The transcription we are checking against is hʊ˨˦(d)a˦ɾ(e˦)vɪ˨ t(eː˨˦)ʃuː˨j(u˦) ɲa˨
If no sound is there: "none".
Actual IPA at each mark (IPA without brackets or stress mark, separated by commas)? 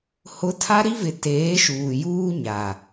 tʰ, i˦, eː˨˦, uː˦